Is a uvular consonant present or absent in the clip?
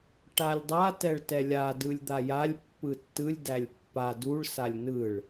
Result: absent